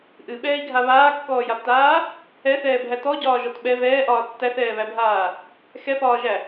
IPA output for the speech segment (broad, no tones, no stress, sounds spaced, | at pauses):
ʔ ɨ ɓ ɛː i̯ ɡʱ a β aː kː ɔː j a b t aː | ɛ θ ɛː bʱ æ t ɔ ɟ ɒː ʒ ɔ t ɓ ɛ v ɛː ʔ ɒː tː æ θ ɛː β æ bʱ aː | x ɛ p ɒː ʒ æ